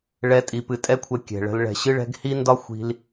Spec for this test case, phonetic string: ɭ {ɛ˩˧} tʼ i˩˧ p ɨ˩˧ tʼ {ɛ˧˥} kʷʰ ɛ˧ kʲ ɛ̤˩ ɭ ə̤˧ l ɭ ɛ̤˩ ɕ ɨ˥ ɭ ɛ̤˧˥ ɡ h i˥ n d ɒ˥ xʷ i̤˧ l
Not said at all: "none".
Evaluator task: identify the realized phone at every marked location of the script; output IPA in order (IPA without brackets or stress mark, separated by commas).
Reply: ɛ˧˥, ɛ˥